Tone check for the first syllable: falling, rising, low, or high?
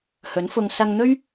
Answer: rising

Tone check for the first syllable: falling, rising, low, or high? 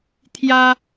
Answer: high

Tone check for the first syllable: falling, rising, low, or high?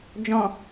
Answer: low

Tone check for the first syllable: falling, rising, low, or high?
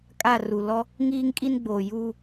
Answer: falling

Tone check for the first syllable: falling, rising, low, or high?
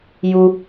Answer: high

